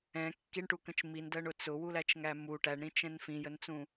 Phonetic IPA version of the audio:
ɛ̃ kː i ɳ ʈ u k ə̃ t͡ʃ m i n d ɜ ɳ ʊ t͡s ʊ w u l æ t͡ʃ ŋ æ m u ʈ æ ɳ ɾ ĩ t͡ʃ ɛ̃ n f ĩ j ə n t͡s ũ

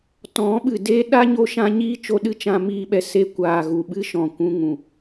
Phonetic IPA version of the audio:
t ɔ̃˨˦ ɓ ɨ˨ d eː˦ ɗ a˦ ɲ o˧ ʃ ã˧ ɲ iː˦ t͡ʃ o˧ ɗ ɨ˦ t͡ʃ ã˧ m iː˧ ɓ ɛ˧ s e˧ kʷ aː˨ ɣ u˨ ɓ ɨ˦ ʃ ɔ̃˨ kʷ ũ˧ ŋ ũ˨

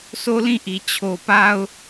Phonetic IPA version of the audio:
sʰ o˦ l ĩ˦˨ ʔ i˨ t͡ɕʰ o˨ p a˦ ʊ̯

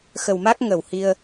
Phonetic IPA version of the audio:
x ə˨˩ w m a˦˥ k̚ ŋ ə˧˩ w h i˧ ə̯

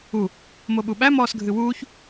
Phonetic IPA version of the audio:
u | m o ɓ u ɓ æ m ɔː s ɡʱ ɨ w uː ç

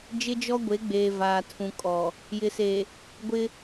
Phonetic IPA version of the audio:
d͡ʒ ɪ˦ d͡ʒ ɔ˦ ɡʷ e˨˦ ɡ͡b eː˨ v aː˨ tʰ ũ˨ kʼ ɔ˨ | j ɪ˨ s e˨ | ɡʷ ɪ˦

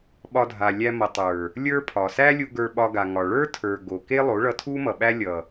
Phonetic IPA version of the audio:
ɓ ɒ˧ dʱ a˨ lʲ æ˧ m ʌ˨ tˤ ə˞˨ | lʲ ə˞˦ pʰ ɒ˨ s æ˦ lʲ u˧ ɡ ə˞˧ ɓ ɒ˧ ɡ a˨ ŋ ɒ˨ ɭ ə˞˦ tʰ ə˞˨ ɡ o˨ k e˦ lˠ o˨˦ ɭ ʌ˧ tʰ u˦ m ʌ˨ ɓ æ˦ lʲ ʌ˨

